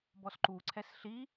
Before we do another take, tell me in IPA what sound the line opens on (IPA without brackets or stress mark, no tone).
b